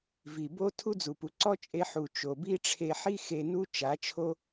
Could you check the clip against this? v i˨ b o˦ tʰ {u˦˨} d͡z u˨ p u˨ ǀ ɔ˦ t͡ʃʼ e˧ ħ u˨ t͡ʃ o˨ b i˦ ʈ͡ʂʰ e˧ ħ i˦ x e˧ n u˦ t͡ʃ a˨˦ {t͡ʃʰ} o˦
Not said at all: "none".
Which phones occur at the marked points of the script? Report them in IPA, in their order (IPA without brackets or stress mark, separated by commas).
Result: u˦, t͡ʃʰ